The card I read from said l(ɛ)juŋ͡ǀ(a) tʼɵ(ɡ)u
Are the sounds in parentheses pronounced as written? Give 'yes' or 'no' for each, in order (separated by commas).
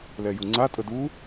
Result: yes, yes, no